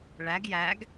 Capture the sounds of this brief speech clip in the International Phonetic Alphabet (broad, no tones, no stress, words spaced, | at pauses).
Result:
ɭæɡ jæɡ